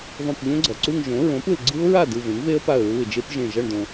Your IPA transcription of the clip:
ðˤ õ˧˩ p ʎ õ˦˥ ɡ͡ǀ ʌ˩ ǀ u˥˧ ŋ ʒ õ˩˥ ɹ õ˩˥ p ɯ˩ l ɡ͡ǀ ɯ˦˥ ʊ̯ ɹ a˥˩ d ɯ˧˩ v ẽ˩˥ ŋ v e˦˥ ə̯ p a˧˩ ə̯ ɹ u˧˩ ɪ̯ d͡ʒ e˦˥ p ʒ ẽ˧˩ ʒ ʌ˧˩ ɳ d õ˩

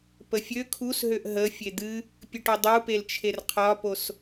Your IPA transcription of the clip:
p ə fʲ ø kʰ u s ɦ ø ʔ ɦ ə fʲ e d̪ ɨ | pʲ ɨ ʈ o dˤ u p e l t͡ʃʰ e r qʰ ɒ p o s

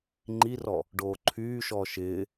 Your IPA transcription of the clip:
ŋ͡ǃ i r ɔ | ɖ oː ǃʰ yː ʃ ɔː ʃ ɪː

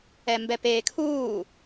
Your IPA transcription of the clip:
ɛ m b ɛ p eː kʰ uː

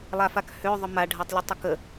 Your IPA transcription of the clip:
lˠ a f a k h ø ðˤ ʊ m a ɖʱ a tˤ lʲ ʊ tˤ ʊ k ə

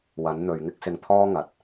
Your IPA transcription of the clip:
w ɐ˨˥ n n̪ ɵ˨ ɥ ŋ ɪ˥ k̚ s ɪ˧ ŋ t̪ʰ ɔː˥ ŋ ɐ˨ t̚

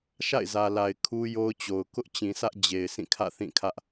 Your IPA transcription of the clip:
ʃ a̰˦˨ ɪ̯ z ä˨ l a˨ ɪ̯ kʰ u˦ j o˦ ʊ̯ t͡ɕ o˨ ʊ̯ k ʊ˦ ʔ t͡ɕ ĩ˨ sʰ ä˦ ʔ d͡ʑ e˨ ɪ̯ sʰ ĩ˦˨ kʰ ä̰˦˨ θ ĩ˦˨ kʰ ä˦ ʔ

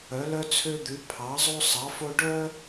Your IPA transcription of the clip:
œ˨˥ l œ˥ t͡sʰ ø˥ d̪ ʉ˨˥ pʰ ɑ˨˥ zˤ o˥ sˤ ɑ˨˥ f o˥ ɖ œ˥

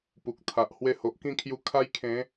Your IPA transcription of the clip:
p u˨ k̚ t̪ʰ a˨ ʔ h w e˧ h o˨ ʔ k ĩ˥˧ kʰ j u˧ kʰ a˦ j kʰ ẽ˨˦

